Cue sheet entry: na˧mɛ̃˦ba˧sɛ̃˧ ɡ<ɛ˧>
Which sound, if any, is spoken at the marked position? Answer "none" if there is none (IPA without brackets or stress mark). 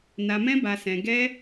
ɛ˧